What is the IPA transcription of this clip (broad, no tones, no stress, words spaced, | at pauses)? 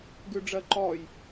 ɡʉɖ͡ʐɜǃɔj